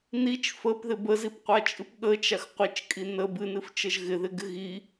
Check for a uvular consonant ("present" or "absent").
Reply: present